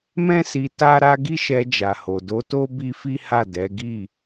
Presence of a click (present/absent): absent